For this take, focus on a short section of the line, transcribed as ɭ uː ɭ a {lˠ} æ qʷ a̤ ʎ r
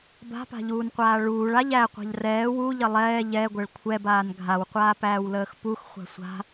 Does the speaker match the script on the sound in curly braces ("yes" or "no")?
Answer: no